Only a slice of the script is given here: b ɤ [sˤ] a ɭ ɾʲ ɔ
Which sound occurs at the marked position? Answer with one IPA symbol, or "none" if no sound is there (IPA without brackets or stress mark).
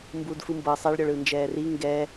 sˤ